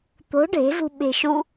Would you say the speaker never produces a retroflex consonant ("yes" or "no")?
no